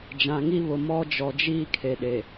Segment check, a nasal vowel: present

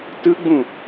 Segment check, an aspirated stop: absent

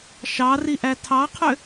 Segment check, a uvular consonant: present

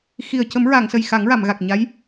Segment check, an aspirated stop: absent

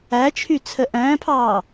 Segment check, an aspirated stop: present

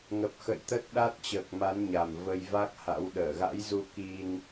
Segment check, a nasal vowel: absent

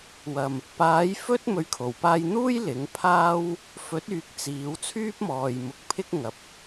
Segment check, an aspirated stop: present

